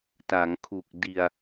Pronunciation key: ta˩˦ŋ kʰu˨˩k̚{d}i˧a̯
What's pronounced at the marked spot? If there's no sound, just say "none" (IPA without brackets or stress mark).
d